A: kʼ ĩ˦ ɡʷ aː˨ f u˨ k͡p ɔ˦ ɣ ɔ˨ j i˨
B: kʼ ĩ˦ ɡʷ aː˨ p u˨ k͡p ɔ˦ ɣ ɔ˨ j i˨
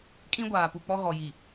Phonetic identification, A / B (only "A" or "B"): B